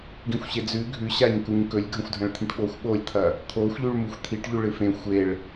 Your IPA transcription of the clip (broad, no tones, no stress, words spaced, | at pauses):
ɡĩxʷɕed͡zʉ ɡʱʉɕaɲkuɲ kɵlʲɡʱɐ̃xʷdʱɐ̃ɭt̪ʰĩʈ ɓoxʷ ɓolʲt̪ʰɐ | t̪ʰoxʷʎʉɭmuxʷ t̪ʰiʈʎʉ ɭɨfẽ xʷeɭ